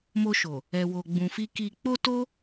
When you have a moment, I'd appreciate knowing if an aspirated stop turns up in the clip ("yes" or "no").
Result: no